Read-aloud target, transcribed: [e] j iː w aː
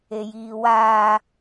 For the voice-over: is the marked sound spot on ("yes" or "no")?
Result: yes